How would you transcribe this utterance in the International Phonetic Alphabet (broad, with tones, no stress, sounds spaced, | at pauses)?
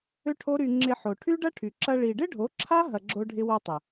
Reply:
ʏ˦ ʈʰ o˦ ɾ y˧ ŋ͡ǁ ɪ˧ ħ o˨ ʈʰ y˦ ɖ ɐ˦ ʈʰ y˨ ǁ ɐ˧ ɭ i˨ ɖ ɪ˦ ɖʱ o˨˦ ǁʰ a˦ ɦ ɐ˧ ɡ͡ǁ o˦ ɖʱ ɪ˦ w o˦ tˤ ə˨